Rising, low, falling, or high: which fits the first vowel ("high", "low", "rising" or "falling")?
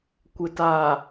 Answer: low